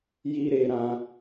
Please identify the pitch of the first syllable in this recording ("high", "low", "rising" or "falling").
high